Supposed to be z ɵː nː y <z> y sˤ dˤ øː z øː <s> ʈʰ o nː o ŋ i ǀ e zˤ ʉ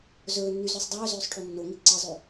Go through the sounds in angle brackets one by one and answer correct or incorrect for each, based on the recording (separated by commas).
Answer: correct, incorrect